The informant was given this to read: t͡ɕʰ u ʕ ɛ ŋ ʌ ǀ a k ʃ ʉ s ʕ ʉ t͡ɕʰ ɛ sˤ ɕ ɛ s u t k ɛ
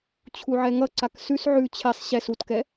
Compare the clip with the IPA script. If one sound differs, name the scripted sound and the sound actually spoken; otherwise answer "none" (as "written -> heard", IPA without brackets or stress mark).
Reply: ʃ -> s